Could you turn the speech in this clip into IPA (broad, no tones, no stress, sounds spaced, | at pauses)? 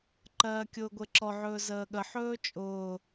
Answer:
ǃ ɜː kʲ ʊː ɡʷ e ǁ ɔ ʕ ɵː z əː ɠ ə ħ ɵː t͡ʃʼ ʊː